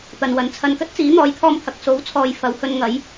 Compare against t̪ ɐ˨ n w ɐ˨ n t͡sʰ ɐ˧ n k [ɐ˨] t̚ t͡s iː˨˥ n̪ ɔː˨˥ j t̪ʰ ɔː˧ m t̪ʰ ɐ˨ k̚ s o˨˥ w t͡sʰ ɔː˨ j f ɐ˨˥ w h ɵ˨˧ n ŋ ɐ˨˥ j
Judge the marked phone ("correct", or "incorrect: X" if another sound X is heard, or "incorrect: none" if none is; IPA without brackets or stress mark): incorrect: ɐ˥